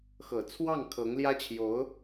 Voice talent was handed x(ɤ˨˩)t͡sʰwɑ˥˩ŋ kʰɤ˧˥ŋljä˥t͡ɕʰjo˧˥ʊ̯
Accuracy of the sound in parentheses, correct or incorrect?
correct